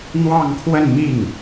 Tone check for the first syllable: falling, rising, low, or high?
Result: falling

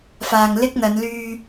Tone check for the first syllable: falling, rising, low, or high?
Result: low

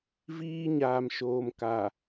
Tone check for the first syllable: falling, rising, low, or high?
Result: high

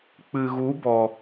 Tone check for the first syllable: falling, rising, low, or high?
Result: low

